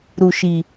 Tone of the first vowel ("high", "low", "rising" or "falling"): low